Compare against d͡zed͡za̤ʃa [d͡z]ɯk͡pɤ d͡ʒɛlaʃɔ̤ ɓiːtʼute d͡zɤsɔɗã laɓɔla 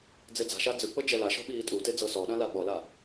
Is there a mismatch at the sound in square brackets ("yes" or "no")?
no